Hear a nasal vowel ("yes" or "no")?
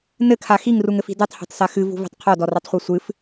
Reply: no